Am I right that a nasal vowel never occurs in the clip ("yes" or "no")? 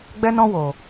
no